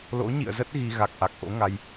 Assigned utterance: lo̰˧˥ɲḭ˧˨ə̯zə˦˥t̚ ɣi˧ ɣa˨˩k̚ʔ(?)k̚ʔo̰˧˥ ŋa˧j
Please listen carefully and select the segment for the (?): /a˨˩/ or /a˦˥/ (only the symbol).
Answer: a˨˩